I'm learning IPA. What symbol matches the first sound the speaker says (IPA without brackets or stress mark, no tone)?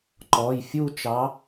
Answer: ǃ